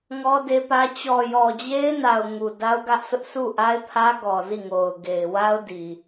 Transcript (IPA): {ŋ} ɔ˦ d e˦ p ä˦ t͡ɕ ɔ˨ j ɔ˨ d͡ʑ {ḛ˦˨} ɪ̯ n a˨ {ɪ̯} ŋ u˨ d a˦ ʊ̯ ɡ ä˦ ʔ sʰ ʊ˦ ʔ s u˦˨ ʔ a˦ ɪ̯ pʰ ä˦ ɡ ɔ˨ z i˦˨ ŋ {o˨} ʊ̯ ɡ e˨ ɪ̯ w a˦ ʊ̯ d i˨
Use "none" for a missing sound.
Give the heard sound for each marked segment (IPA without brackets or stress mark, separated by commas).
ŋ, e˦, ʊ̯, o˨